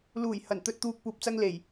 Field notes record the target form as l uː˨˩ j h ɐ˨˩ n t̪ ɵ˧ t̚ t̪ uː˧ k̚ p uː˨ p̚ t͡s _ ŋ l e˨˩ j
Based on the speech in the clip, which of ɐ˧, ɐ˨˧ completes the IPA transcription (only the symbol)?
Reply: ɐ˧